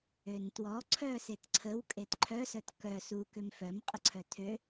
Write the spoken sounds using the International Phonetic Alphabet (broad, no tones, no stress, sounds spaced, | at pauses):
ø n t w ɔ ǀʰ œ s e t ǀʰ ə w kʼ e t ǃʰ œ s œ t k œ s u k ø m f œ m qʼ ə ǀʰ œ tʰ ø